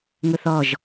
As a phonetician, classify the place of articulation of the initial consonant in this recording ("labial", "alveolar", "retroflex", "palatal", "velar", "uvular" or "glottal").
velar